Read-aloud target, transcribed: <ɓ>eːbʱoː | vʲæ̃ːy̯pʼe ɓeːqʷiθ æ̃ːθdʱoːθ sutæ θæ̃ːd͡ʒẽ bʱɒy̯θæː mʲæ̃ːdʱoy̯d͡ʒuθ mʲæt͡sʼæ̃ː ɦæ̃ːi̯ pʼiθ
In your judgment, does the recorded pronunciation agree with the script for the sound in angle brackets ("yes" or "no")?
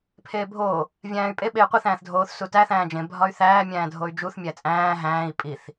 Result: no